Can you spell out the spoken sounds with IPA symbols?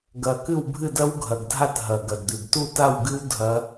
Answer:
ɡ ɐ˨˩ k ɨ˥˨ w bʱ ɨ˥˨ d ɐ˦˥ w ɡʱ ɐ˨˩ ɡ dʱ a˥˨ t ɦ ɐ˨˩ ɡ ɐ˨˩ d d̪ ʉ˨˩ ɡ t u˥˨ t a˥˨ w ɡ ɨ˦˥ w dʱ ɐ˦˥

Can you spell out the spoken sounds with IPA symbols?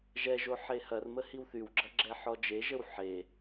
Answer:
ʒ ɛ ʒ o ħ e h ɐ r m ə h i w θ y w ɡ͡ǁ ɐ ɡ͡ǁ ɛ ħ ɔ d͡ʒ e ʒ ə w ħ e

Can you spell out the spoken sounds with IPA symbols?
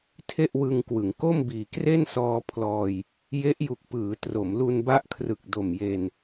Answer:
tʰ e˥˩ ʔ w ɯ˧ ŋ k w ɯ˩˦ ŋ k o˥˩ m b iː˨˩ k r e˥˩ n s ɔː˧ pʰ l ɔː˧ j | j e˦˥ ʔ j u˨˩ k̚ p ɯː˩˦ t r o˩˦ m l u˧ n b a˦˥ ʔ kʰ r ɯ˨˩ k̚ d o˨˩ m j e˧ n

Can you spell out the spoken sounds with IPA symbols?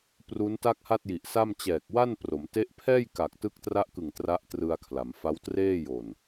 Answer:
p r u˦˥ n t a˥˩ k̚ h a˥˩ t̚ j i˨˩ ʔ s a˥˩ m t͡ɕ ɛː˨˩ k̚ w a˥˩ n p r o˩˦ m t e˦˥ ʔ pʰ ɛː˥˩ j k a˨˩ k̚ t ɯ˦˥ k̚ t r a˦˥ ʔ k ɯ˨˩ ŋ t r a˦˥ ʔ t r ɯ˧ a̯ kʰ l a˩˦ m f a˦˥ w t r eː˥˩ j o˨˩ n

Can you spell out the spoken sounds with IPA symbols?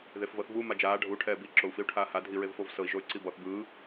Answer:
ð e f v ɤ θ v u m a d͡ʒ aː ɖʱ u ʈʰ ɛː b i ǁ o u̯ f i u̯ ʈʰ aː h a dʱ i ɹ e v f o v s ɤ i̯ ʒ o y̯ ǀ i b ɔ θ b ɯː

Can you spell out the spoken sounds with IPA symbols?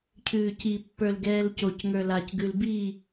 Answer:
cʰ ʉː c i pː ə˞ l ɡ ɛː l c o c ŋ ə˞ l a c ɡ ʉ l b i

